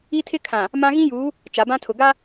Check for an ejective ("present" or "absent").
absent